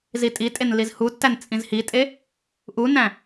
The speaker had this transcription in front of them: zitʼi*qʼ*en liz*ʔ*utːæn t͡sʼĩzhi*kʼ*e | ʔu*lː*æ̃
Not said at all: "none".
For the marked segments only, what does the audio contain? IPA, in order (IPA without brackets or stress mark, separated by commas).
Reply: tʼ, h, tʼ, n